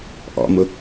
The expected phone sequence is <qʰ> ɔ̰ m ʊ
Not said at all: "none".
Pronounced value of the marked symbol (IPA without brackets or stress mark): ʔ